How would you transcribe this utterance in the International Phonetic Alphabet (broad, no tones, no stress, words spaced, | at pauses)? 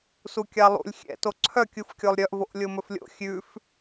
sukʲɑlˠṵlʲ xʲɛ̰to ǀʰœkʲuf kʲolˠɾʲœʔvoʔ lʲomɵflʲo̰ xʲʉf